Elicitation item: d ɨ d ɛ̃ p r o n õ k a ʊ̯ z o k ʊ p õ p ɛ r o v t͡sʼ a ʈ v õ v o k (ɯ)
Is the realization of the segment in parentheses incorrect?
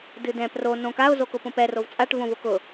yes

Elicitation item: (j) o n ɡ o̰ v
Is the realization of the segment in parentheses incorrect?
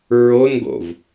yes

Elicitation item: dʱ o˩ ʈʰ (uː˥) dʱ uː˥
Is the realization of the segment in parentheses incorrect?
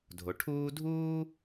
no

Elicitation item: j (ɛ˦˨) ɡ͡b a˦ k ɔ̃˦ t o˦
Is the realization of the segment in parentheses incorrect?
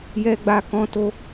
yes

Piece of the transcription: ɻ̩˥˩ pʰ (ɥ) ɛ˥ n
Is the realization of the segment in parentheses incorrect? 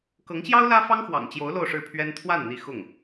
no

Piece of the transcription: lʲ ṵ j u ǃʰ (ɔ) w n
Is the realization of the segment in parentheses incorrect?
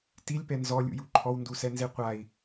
no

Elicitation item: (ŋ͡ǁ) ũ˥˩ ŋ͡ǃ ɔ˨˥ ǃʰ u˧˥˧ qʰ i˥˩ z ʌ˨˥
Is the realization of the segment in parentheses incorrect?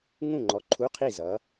yes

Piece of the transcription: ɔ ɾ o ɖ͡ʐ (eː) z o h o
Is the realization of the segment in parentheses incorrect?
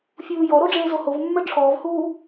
no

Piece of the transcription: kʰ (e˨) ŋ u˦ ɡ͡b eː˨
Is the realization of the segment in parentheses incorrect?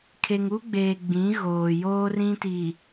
no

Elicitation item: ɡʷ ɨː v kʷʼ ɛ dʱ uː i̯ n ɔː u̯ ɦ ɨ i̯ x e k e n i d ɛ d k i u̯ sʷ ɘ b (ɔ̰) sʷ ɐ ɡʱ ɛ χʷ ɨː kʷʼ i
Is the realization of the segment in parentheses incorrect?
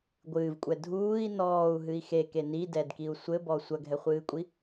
yes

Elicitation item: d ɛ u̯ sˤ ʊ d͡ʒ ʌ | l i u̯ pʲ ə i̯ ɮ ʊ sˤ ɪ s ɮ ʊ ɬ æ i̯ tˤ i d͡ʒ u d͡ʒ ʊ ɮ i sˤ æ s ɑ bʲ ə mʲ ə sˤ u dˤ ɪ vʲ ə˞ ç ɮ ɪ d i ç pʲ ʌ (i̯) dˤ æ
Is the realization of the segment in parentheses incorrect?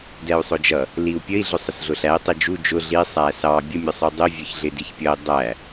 no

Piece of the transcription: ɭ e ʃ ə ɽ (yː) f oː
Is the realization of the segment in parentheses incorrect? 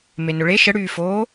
no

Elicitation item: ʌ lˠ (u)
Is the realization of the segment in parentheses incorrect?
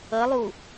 no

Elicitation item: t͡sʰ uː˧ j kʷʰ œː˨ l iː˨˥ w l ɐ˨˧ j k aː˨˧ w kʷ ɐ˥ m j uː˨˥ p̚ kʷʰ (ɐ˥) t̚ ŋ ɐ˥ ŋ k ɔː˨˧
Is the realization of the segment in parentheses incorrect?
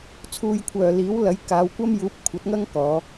yes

